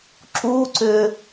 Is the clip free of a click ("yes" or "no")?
no